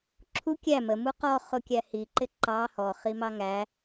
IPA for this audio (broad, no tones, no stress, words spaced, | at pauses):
ǁʰu kʲæ məmu qɔχʊkʲæ hiǃɪ ǃɑ hɔχimɑ ŋæ